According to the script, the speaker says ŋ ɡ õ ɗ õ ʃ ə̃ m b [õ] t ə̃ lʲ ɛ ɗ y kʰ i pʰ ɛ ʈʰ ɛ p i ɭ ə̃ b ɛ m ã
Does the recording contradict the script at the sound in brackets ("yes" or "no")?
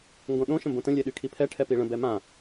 no